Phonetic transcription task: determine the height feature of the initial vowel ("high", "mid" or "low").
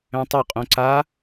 mid